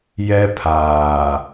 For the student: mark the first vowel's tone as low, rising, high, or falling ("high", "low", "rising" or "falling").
high